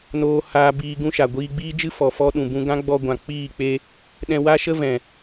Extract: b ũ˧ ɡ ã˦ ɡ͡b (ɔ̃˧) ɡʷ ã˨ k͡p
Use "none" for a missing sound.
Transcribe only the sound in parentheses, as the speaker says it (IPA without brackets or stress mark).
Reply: ɔ˧